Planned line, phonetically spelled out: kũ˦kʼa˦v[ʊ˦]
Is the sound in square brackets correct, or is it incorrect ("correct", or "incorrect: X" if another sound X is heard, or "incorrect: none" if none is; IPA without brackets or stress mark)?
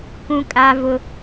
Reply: correct